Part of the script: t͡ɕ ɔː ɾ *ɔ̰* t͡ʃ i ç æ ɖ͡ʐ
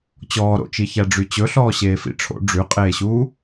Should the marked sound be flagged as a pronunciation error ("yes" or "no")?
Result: yes